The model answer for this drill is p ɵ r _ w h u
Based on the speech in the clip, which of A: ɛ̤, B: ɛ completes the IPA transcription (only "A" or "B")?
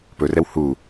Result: B